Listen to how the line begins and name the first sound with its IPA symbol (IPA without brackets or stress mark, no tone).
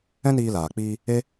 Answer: ɛ̃